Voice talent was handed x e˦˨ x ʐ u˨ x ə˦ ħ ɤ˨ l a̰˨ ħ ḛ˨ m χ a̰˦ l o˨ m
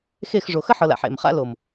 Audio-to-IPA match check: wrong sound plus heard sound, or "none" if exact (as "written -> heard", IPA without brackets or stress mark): u˨ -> o˨